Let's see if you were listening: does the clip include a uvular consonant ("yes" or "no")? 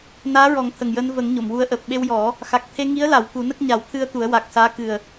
no